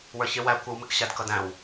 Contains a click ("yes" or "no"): no